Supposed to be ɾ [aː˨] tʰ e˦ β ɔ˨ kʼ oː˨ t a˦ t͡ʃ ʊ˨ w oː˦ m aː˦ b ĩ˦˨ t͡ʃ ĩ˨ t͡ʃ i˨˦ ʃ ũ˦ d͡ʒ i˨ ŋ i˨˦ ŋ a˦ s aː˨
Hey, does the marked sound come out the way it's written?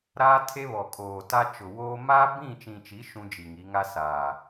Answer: no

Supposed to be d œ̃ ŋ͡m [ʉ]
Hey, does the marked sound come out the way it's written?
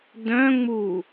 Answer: no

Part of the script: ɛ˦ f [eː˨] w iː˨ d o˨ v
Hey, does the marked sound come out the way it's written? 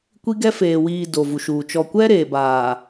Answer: yes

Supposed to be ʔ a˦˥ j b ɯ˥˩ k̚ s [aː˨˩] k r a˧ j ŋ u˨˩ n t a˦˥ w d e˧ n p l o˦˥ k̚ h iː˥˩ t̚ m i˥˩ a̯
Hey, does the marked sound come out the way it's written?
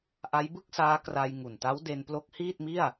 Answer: no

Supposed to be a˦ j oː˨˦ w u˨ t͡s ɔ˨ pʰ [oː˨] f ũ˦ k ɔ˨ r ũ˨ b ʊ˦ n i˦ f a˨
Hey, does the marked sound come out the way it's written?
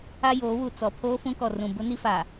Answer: no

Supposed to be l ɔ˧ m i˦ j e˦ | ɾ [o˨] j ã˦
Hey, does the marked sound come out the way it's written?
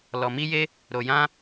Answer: no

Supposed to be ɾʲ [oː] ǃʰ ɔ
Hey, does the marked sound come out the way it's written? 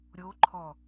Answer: no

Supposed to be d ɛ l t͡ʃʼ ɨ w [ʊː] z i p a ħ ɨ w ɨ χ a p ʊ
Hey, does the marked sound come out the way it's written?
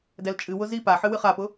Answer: no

